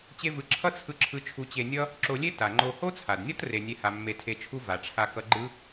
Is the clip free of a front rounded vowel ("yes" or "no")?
yes